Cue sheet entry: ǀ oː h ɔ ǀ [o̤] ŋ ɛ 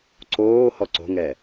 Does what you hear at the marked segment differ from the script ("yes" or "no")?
no